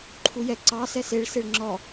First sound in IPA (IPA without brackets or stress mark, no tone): ǃʰ